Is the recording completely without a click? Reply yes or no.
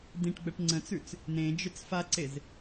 no